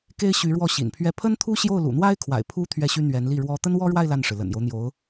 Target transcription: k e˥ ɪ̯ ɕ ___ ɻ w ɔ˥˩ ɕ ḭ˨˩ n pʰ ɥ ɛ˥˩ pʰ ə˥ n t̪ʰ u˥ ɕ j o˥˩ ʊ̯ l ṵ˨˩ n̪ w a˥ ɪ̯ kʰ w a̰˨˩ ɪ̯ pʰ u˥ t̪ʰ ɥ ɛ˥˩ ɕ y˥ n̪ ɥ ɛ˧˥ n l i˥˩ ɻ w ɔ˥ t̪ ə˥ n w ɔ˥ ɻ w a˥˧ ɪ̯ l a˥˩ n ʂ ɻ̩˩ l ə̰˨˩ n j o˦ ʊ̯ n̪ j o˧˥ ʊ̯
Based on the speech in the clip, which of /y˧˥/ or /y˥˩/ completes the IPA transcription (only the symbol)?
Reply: y˧˥